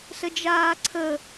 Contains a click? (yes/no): yes